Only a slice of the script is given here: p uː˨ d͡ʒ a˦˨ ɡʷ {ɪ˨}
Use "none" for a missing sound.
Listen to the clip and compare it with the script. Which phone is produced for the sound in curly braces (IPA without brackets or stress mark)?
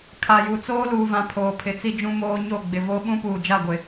ɪ˨